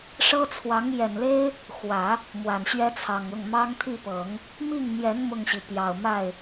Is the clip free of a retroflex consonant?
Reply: no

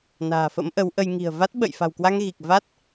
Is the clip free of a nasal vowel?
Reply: yes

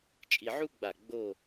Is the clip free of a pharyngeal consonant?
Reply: no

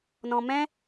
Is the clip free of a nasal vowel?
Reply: no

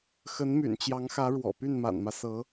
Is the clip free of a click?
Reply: yes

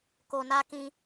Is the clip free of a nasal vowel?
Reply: no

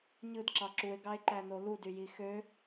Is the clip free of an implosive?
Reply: yes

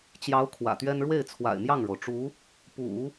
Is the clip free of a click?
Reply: yes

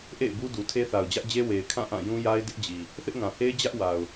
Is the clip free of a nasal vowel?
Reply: no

